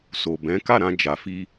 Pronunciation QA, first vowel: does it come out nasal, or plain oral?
oral